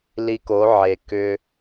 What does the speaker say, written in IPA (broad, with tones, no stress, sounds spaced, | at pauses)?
l i˧ k o˨˦ ʕ e˨ k ʏ˦